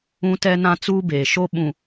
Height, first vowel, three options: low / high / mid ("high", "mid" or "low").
high